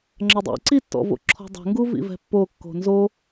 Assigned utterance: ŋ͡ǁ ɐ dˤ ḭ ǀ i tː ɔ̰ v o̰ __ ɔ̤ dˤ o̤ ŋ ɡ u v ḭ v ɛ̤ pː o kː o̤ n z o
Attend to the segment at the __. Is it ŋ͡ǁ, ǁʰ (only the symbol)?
ǁʰ